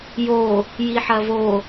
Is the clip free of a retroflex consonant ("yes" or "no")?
yes